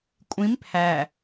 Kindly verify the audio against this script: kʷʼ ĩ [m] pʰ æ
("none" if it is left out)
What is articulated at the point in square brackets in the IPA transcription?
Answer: m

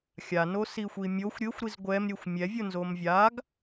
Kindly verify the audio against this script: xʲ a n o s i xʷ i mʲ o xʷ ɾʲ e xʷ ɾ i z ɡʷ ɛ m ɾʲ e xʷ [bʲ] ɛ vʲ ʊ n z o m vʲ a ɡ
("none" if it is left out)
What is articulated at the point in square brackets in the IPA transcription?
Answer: mʲ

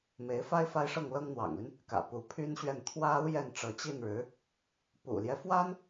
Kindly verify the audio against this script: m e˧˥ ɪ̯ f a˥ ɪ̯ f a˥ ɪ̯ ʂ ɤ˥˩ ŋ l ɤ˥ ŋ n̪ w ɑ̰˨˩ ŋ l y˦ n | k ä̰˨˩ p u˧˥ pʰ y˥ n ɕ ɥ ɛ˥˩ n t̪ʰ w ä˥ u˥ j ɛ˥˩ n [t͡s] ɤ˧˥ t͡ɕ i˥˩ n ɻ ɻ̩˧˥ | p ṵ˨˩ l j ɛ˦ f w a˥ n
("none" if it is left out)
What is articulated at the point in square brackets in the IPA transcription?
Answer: ʈ͡ʂ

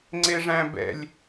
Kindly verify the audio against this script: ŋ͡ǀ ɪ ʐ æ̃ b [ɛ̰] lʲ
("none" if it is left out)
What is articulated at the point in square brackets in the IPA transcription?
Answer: ɛ̰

